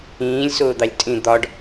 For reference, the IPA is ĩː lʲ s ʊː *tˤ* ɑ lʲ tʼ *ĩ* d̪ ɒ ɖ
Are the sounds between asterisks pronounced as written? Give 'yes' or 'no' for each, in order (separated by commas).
no, yes